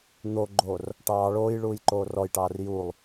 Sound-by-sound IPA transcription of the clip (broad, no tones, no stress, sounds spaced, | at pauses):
n̪ o ɡ͡ǃ oː r | ʈ ɑː ɭ oː j ɭ uː j ǃ oː r ɔ j ʈ ɑː r j u lˠ